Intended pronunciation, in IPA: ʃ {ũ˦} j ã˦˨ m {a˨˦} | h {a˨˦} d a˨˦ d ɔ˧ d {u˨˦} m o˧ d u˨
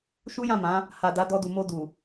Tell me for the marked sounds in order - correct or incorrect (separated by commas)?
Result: incorrect, incorrect, incorrect, incorrect